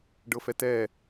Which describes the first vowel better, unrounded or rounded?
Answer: unrounded